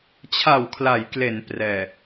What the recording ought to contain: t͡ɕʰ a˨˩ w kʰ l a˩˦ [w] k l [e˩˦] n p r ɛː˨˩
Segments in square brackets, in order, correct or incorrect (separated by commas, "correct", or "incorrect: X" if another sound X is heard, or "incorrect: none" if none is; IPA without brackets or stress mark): incorrect: j, correct